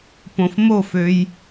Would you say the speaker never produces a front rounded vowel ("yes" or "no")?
no